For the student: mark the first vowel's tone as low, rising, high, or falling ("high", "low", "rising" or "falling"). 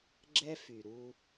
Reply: high